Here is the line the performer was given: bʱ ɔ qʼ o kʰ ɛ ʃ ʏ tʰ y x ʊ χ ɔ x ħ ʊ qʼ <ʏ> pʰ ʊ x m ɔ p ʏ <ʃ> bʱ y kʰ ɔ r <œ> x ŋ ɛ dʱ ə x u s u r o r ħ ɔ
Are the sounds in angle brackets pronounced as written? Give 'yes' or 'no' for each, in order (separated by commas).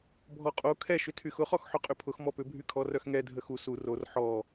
yes, no, yes